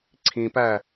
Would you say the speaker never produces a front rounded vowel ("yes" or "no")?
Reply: yes